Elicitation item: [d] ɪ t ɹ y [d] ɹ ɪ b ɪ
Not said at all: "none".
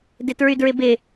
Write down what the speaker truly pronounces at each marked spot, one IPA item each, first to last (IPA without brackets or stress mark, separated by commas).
d, d